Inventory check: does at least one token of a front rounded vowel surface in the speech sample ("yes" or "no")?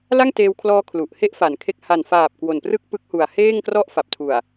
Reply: no